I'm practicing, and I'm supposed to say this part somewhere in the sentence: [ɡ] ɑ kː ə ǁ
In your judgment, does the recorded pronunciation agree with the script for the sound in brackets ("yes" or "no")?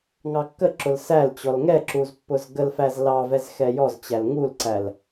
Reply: no